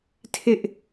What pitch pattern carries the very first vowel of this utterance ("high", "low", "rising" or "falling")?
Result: high